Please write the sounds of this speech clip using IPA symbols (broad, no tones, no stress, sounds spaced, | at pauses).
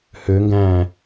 h ø ŋ ɡ æ̃ː